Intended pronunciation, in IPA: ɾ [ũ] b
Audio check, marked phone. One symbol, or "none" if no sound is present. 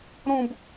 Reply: ũ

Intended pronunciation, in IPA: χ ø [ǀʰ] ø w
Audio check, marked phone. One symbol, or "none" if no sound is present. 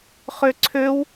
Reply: ǀʰ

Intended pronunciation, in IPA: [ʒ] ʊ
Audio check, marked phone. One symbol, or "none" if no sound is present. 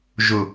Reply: ʒ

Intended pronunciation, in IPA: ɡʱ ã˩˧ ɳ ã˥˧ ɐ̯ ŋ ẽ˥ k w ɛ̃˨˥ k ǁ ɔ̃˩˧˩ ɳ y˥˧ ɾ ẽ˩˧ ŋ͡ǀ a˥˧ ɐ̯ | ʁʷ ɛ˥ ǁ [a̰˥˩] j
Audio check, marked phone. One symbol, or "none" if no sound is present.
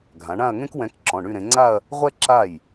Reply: a˥˩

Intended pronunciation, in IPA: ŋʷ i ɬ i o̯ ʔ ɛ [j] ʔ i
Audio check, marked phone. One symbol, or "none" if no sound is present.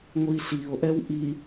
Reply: w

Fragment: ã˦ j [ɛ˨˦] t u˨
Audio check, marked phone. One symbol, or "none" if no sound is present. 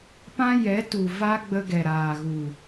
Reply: ɛ˨˦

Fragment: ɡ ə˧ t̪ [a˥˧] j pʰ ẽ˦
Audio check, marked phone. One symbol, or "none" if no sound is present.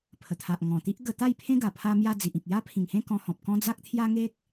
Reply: a˥˧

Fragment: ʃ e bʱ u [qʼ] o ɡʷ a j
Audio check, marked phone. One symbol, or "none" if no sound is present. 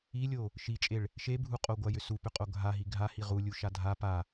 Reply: qʼ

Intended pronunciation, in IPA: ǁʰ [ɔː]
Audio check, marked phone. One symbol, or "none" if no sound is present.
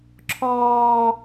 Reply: ɔː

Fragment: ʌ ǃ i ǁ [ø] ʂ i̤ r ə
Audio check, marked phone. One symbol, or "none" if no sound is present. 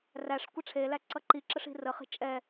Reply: ə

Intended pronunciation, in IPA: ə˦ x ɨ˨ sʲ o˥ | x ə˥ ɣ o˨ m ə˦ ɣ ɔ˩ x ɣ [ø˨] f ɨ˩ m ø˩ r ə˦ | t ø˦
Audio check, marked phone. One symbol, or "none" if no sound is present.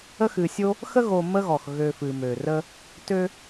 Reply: ø˨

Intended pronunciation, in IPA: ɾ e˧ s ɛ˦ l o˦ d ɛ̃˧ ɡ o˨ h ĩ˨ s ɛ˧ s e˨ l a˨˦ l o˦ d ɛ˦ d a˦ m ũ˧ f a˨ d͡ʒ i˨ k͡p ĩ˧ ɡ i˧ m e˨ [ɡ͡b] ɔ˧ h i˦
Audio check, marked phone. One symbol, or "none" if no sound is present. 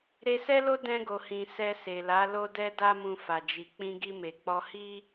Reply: k͡p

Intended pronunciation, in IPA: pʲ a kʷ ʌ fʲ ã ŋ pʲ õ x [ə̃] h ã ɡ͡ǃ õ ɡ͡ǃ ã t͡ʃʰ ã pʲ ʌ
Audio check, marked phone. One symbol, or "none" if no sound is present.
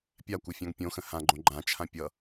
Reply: ə̃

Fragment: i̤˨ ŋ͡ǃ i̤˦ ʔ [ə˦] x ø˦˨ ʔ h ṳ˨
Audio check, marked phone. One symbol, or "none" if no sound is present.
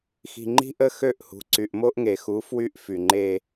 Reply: ə˦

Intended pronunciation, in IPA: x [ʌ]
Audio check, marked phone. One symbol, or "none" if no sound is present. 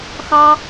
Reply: ɑ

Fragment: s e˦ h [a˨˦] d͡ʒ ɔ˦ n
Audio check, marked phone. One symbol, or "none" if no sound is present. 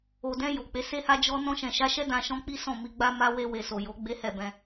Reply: a˦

